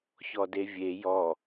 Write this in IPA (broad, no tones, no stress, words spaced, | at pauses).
çɔdevʲe jɔ